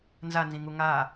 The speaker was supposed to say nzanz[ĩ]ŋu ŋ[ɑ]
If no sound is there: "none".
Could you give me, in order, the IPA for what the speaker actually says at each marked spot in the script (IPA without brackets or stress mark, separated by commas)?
ĩ, a